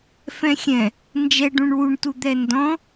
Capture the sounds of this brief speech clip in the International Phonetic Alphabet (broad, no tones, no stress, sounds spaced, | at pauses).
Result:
f ɛ̃ xʲ ɛ̃ | n d͡ʒ ɛ ɖ ũ ɳ w u ɳ t u d̪ ɛ n d ɔ̃